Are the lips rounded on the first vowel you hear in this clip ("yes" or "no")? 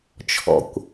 yes